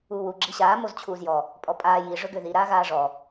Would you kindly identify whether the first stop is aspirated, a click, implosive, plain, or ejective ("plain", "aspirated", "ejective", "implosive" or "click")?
click